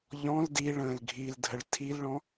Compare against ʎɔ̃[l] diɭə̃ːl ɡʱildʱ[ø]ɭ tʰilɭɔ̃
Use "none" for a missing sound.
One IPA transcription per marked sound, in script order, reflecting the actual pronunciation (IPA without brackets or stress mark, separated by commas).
l, ə